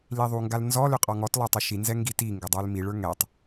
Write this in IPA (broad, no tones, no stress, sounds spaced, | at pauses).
l i ðˤ u ŋ ɡ a l n z ɔ l ʏ qʼ ɔ ŋ ɔ t lˠ ə˞ tˤ ʏ ʃ i n z ɛ ŋ ɡ i t i ŋ ɡ ʏ dˤ ə˞ l m i ɭ ə˞ ŋ ɛ tˤ